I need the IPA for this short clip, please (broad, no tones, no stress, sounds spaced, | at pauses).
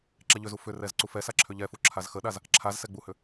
ǁ ɛ ʎ ʏ z u f ʏ r ɛ z ǀ u f ɛ s a ǁʰ ʏ ʎ ɛ f u ǁʰ a z x ə ɗ a z | ǁʰ a z s ɛ ɡ͡b u h ʏ